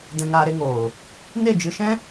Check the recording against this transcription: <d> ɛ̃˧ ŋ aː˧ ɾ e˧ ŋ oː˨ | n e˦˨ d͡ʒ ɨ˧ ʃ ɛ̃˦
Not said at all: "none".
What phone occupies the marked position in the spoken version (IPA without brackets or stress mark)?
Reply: d